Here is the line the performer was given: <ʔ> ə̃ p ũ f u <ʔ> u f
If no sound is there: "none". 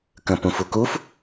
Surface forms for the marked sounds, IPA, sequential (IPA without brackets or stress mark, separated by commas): k, k